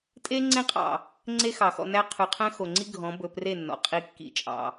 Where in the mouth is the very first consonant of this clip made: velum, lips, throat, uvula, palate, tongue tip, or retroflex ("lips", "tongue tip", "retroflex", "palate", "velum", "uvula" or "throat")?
tongue tip